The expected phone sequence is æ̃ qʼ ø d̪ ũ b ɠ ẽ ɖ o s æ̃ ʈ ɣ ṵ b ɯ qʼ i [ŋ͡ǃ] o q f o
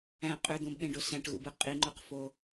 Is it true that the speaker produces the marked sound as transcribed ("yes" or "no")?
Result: yes